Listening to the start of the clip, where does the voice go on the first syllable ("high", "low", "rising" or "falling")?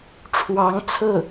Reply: rising